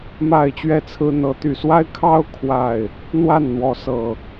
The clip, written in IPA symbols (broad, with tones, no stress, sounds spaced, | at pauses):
m a˥˨ ɪ̯ t͡ɕ ɥ ɛ˥˨ t͡sʰ ɹ̩˦ n̪ ɤ˨˦ t̪ y˨˩ s w a˦ ɪ̯ kʰ ɑ˦ ʊ̯ kʰ w a˥˨ ɪ̯ | n̪ w a˥˨ n n̪ w ɔ˨˦ s ɤ˨˩